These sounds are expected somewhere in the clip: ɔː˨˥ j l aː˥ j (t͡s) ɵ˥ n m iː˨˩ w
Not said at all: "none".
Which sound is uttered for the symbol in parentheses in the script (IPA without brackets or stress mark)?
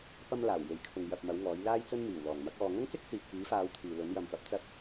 t͡s